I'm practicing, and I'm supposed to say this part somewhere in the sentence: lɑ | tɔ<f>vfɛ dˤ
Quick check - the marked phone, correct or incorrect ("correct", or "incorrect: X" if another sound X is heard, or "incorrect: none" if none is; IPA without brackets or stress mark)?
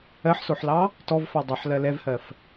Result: incorrect: none